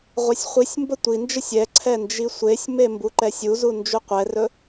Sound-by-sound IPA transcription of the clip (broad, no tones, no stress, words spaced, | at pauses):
ʁʷɛsʲχʷisʲmbə tʷind͡ʒəsʲ ɛǀʰɛ nd͡ʒisʷesʲme mbuǃɛsʲuzu nd͡ʒuqʷɛrɵ